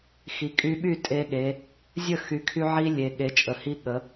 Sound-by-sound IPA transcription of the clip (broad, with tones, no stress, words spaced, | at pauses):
xi˩ kʼy˧ɓy˥˩tʼe˧ɠe˩˧ | zʲə˥˩ xy˩˧kʰy˧ ʕi˧ lʲe˩ ɠe˩˧t͡ʃʼə˩hi˧ ɠə˩˧